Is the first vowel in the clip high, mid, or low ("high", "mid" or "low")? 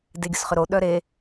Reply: mid